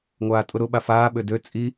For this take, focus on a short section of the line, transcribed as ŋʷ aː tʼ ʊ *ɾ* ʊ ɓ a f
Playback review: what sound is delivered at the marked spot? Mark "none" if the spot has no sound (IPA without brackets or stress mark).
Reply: ɾ